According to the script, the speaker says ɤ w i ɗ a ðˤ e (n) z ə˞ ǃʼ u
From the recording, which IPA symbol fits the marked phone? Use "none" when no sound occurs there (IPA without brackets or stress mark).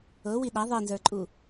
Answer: n